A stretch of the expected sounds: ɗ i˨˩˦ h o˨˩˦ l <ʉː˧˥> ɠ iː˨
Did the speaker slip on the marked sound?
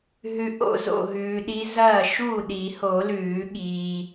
yes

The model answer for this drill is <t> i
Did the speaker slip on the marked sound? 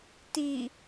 no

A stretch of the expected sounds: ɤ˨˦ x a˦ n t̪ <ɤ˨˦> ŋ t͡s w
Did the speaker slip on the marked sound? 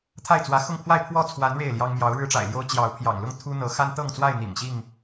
yes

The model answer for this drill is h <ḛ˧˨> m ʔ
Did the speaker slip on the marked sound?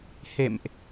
no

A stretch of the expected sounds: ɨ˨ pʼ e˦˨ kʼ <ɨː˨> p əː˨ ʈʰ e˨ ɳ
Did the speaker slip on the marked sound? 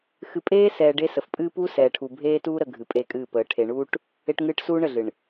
yes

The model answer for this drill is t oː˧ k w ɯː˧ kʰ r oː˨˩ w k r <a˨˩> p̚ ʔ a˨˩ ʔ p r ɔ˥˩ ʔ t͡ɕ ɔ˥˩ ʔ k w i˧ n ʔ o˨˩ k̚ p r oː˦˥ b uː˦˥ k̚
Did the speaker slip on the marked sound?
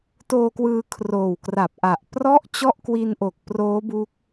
no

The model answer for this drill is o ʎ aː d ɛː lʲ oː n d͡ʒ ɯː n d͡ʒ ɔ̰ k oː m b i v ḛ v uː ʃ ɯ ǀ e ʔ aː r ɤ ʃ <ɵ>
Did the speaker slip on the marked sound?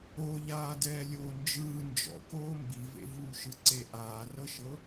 yes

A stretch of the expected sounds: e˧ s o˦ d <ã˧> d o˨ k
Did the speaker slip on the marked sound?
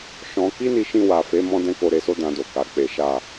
no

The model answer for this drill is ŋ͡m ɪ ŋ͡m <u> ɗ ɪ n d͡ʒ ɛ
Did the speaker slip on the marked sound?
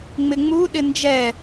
no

